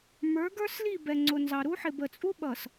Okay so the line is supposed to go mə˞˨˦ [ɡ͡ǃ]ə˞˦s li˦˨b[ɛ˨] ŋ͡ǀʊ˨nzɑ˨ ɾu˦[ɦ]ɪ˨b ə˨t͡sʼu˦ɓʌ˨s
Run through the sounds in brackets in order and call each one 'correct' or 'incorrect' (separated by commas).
incorrect, correct, incorrect